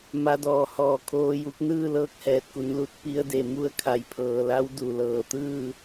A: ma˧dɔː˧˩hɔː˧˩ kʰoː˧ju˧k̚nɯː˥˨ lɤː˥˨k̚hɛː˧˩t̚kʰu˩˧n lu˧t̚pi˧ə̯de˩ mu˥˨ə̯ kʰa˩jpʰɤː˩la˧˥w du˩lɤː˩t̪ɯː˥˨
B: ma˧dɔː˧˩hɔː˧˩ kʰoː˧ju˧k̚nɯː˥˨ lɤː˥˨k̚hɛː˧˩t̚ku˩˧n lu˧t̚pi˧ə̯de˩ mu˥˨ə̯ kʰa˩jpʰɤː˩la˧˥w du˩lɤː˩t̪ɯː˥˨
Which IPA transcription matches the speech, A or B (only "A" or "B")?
B